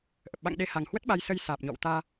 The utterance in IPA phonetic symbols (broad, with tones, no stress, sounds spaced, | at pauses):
ʔ ə˨˩ p̚ ɓ a̰˧˨ ŋ ɗ e˧ h a˨˩ ŋ h w ə˦˥ t̚ ɓ a˧ j s ə˧ j s aː˨˩ p̚ ɲ ɔ̰˧˨ w t̪ aː˧